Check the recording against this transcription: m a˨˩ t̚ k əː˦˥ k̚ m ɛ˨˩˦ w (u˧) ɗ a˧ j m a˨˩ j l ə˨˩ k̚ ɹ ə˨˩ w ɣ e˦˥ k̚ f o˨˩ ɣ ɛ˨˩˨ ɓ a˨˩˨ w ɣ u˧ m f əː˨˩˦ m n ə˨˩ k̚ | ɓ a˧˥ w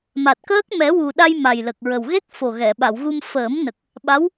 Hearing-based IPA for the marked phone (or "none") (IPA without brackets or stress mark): u˨˩